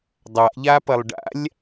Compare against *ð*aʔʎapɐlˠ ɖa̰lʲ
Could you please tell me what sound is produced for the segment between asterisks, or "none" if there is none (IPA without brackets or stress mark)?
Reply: dˤ